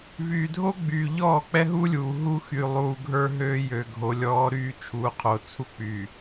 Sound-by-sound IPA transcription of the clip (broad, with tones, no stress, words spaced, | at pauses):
vyː˨dʱo˦ɡ͡by˨ ʎɔː˦˨k͡pɛ˦ɦu˦lʲuː˨ ɦu˦xy˨lˠuː˨ɡʱə˞˦ ɦøː˦jø˨ɡʱo˨ lʲɔː˦ɾyː˦ t͡ʃʰuː˨qʰo˨t͡sʰu˦ k͡pyː˨